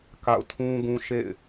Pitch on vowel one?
falling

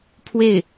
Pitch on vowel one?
falling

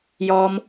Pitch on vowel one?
high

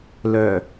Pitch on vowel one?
low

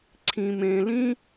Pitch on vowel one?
low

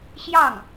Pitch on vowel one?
falling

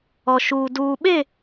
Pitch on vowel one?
low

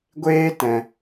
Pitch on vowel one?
high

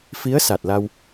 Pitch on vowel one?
rising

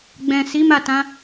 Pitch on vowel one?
low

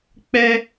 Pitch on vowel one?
high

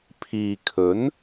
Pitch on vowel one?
low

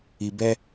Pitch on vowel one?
low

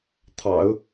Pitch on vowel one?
low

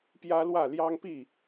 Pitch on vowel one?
high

